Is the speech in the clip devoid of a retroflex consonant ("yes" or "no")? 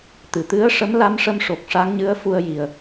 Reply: no